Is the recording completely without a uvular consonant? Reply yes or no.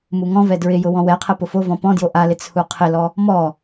no